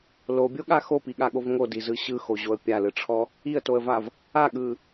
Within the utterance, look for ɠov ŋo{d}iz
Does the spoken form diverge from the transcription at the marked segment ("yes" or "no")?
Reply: no